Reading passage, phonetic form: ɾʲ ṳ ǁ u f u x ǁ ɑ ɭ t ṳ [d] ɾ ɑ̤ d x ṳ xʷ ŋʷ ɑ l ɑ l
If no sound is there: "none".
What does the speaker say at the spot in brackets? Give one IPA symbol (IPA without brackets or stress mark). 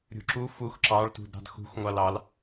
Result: d